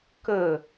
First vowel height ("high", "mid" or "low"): mid